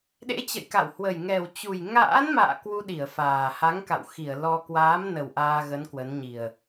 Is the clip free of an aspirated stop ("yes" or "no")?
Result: yes